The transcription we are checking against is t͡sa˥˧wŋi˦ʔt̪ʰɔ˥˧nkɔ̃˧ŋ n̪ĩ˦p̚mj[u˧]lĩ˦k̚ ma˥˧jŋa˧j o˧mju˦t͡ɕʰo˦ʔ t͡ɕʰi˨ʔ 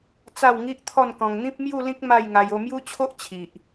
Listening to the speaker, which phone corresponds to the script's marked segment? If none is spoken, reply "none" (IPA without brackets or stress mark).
u˥˧